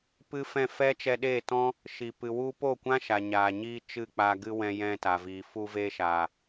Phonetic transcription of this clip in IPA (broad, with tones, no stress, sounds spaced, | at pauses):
p ɨ˦ f ɛ̃˦˨ f ɛ˦ t͡ʃ ɛ˧ ɗ eː˦˨ t ɔ̃˦ | ʃ i˨ p ɨ˨ w u˦ p o˦˨ kʷ ã˦ ʃ a˨ ɲ aː˨ ɲ iː˧ t͡ʃ ɨ˦˨ k͡p a˧ ɡ ɨ˧ w ɛ̃˧ j ɛ̃˧ t a˨ v iː˨ f u˧ v e˧ ʃ a˨